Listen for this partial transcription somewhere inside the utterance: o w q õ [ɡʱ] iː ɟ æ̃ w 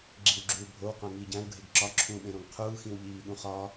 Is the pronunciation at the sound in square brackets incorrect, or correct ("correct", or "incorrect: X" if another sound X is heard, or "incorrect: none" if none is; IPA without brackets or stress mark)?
incorrect: ŋ